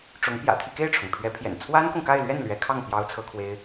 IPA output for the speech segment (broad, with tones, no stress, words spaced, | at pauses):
ʈ͡ʂʊ˧˥ŋ pjä̰˨˩ t̪ʰi˥˧ ke˥˩ɪ̯ʈ͡ʂʰʊ˩ŋ pʰɥɛ˧˥pʰjɛ̰˨˩n t͡sʰwa˥nkʊ˨ŋka˥˧ɪ̯lɥɛ˥˩n lɥɛ˧˥kʰɑ˥˩ŋ pjɑ˥ʊ̯t͡sʰɤ˥kʰwe˥ɪ̯